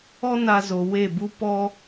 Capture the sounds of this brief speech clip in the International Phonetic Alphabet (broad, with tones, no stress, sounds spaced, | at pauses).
ɔ˦ n a˧ z o˨ w e˦˨ b u˦ p ɔ˦